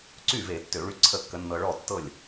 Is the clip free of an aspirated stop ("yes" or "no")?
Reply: no